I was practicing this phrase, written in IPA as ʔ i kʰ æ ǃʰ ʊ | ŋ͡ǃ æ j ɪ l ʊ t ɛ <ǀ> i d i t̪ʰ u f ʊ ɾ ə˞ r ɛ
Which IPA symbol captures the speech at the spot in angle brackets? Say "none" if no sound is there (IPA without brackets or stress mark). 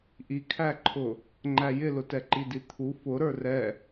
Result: ǃ